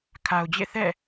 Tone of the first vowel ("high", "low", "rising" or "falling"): low